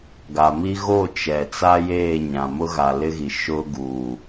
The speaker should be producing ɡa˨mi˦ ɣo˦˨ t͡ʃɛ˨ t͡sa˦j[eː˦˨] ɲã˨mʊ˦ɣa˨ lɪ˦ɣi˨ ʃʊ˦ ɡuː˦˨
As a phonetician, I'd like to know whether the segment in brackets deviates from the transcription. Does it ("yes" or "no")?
no